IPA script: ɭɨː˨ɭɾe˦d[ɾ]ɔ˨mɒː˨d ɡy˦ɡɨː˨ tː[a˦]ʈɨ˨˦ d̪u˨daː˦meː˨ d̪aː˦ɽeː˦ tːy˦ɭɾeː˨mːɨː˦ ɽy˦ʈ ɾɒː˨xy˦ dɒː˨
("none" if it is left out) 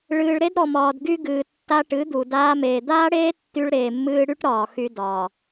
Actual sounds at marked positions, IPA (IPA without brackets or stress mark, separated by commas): ɾ, a˦